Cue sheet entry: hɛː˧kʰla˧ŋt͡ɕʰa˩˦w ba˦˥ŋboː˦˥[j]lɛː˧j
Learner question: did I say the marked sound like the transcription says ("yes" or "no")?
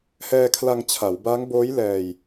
yes